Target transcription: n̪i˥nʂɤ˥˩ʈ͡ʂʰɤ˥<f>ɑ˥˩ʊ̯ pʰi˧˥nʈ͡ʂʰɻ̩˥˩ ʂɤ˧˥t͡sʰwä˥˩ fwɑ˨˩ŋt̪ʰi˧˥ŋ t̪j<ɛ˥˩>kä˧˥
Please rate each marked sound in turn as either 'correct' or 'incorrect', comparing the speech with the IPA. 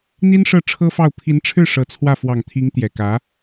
correct, incorrect

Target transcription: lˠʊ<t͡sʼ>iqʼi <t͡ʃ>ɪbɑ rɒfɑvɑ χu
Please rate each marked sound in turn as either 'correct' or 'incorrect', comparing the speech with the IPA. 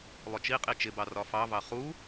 incorrect, correct

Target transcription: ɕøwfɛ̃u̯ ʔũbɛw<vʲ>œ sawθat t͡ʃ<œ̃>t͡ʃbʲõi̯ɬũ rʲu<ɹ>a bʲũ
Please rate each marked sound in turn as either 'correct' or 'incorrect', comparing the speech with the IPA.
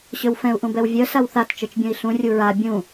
correct, incorrect, correct

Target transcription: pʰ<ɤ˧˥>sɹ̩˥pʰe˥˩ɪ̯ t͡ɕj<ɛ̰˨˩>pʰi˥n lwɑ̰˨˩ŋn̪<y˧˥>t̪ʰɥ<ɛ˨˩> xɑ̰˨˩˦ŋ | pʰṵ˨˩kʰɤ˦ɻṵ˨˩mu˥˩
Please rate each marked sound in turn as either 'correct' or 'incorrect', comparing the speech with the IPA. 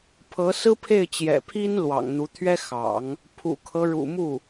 correct, correct, incorrect, incorrect

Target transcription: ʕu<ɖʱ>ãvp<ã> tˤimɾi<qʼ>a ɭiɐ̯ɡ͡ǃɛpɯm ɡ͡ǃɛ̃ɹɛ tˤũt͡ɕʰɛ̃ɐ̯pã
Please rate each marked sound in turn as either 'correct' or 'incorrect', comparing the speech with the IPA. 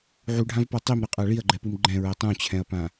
correct, incorrect, correct

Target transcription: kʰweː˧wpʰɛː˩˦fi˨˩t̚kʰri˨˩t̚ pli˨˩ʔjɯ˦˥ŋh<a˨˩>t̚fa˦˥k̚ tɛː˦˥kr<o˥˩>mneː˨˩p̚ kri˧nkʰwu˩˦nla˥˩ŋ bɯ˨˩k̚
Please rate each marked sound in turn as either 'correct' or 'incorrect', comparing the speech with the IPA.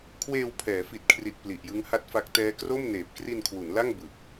incorrect, correct

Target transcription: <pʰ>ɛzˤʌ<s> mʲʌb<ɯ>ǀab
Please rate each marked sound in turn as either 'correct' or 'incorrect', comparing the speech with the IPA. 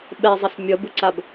incorrect, correct, correct

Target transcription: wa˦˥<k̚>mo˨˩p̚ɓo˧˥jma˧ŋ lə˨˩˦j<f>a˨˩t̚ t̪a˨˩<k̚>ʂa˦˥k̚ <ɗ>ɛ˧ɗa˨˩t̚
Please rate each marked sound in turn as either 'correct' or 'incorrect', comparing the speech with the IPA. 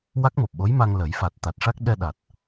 correct, correct, incorrect, correct

